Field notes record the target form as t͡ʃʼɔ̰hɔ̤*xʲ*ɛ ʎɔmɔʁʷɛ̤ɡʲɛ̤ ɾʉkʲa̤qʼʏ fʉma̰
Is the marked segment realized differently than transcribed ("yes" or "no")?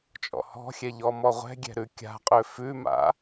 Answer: no